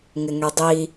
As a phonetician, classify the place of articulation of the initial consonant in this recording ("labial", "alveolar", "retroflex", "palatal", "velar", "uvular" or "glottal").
velar